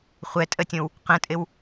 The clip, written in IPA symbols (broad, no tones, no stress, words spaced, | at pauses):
χʷɛtʼətʲõw | qə̃tʼɪw